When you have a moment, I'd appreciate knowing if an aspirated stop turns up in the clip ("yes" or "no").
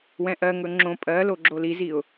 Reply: no